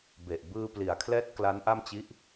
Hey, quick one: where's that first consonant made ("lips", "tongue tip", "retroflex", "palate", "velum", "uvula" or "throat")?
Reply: lips